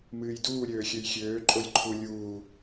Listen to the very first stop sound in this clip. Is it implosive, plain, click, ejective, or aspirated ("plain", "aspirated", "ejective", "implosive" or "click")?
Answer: plain